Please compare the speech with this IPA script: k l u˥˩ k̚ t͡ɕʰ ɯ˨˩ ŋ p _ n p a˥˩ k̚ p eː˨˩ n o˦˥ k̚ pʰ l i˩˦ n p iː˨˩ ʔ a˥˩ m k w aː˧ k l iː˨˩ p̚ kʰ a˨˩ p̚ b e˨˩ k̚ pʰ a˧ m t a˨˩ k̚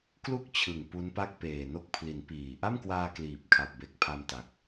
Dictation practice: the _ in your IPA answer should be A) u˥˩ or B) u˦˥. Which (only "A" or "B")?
B